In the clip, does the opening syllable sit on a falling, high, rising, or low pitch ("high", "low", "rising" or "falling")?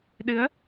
rising